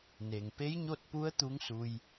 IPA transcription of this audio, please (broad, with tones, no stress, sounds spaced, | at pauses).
n e˩ ŋ p e˧˥ j ɲ o˥˨ t̚ p u˧˥ ə̯ t̪ u˧˥ ŋ s u˧ j